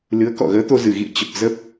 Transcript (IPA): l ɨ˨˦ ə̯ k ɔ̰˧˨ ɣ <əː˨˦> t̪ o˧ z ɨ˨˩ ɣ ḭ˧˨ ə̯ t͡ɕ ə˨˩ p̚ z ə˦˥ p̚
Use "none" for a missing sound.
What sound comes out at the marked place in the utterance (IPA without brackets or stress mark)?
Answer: əː˨˦